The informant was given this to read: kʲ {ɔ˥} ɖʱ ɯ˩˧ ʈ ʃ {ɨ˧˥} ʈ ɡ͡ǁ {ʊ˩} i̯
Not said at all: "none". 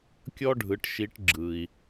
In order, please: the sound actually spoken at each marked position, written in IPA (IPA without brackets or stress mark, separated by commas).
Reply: ɔ˥, i˧˥, ɯ˩